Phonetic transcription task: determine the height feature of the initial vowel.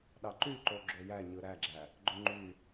low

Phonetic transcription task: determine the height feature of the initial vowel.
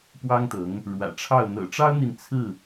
low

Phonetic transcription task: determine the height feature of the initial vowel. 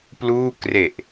high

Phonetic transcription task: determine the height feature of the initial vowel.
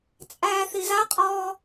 low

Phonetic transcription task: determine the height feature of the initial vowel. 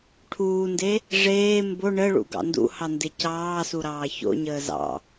high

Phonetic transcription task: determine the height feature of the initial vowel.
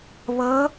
mid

